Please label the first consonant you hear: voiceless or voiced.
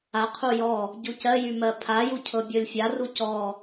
voiceless